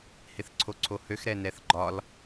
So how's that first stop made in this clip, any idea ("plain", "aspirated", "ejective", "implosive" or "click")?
click